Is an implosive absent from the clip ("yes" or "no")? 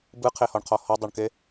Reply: yes